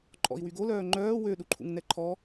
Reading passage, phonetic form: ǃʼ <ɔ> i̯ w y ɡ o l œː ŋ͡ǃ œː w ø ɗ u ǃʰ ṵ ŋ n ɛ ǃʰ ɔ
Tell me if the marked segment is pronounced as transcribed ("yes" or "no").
no